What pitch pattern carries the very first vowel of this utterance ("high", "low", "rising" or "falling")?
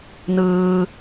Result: high